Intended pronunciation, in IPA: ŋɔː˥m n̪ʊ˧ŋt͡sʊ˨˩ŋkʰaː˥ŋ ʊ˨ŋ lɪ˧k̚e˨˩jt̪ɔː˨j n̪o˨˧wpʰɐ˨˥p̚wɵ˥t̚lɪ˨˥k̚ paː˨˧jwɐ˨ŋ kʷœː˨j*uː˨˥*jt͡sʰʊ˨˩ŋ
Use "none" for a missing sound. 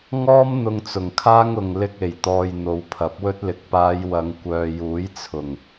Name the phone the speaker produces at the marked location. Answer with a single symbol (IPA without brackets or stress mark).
uː˨˥